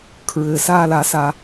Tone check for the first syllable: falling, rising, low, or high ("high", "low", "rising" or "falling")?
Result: low